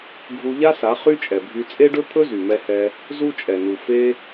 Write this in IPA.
ɡʱu˧ʎa˦sa˨˦ χy˦t͡ʃʼɛ˨bʱy˧ t͡sʼe˦ɖɵ˦t̪ʰɵ˦ zy˨mɛ˧hɛ˧ | zu˦t͡ʃʼɛ˨nu˨ fe˦

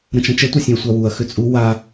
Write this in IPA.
ɾə̃t͡ʃɐ̃t͡ʃɛ tʷɐsʲẽɐ̯sʷawuɐ̯ xʏt͡sʼu wa

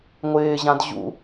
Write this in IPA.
ŋʷɪːʑãd ʑṵ

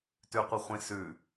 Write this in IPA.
tʉqʷɨχʷĩ sʉ

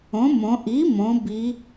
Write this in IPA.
õ˩˥mõ˩˧ ʔi˩˥mõ˩˧ bi˩˧

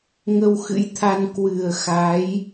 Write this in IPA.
ŋə˧wxɨ̰˧˥jt̪ʰa˧n kwɨ˨˩ə̯xa˨˦j

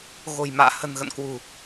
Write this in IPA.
ɣo̤˨˩jma̰ː˧˨ hə̤˨˩nɣə̰˧˨nkwṳ˨˩

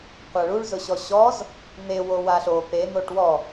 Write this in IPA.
qʷaɭuɭzʊɕɔ ɕɔz | n̪ewo waɬo pe n̪oʈwɔ

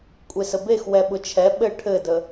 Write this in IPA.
kʷʼesəbex wɛɓʊt͡ʃʰɛ ɓɘ ʈʰɘdə

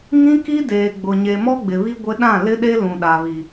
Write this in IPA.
ŋĩ˦ki˦deː˨ ɡ͡bʊ˨ɲe˨ mɔ˦ɡ͡bɪ˨βi˦ ɡʷɪ˦ ɗã˦˨lɪ˦ɗe˦ lũ˨ɗa˨βi˨

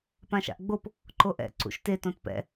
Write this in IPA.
pãʃa̰ʔɡ͡bop | ǃoʔɛ̰ ǀṵʃte tõtpɛ̰

